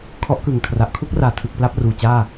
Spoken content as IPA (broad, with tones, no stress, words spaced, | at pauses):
kʰɔ˦˥ʔkɯ˨˩ŋkʰra˨˩ʔ kʰu˥˩k̚raː˨˩ tʰɯ˨˩k̚ pla˥˩p̚ruː˨˩t͡ɕaː˥˩